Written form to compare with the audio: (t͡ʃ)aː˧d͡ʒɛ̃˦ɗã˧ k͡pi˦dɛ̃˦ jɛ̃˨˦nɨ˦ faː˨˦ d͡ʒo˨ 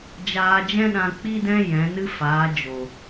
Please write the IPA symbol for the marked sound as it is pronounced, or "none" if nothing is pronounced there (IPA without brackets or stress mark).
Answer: d͡ʒ